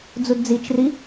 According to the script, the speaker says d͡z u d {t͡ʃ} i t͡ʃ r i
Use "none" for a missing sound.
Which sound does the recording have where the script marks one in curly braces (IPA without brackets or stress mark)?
d͡z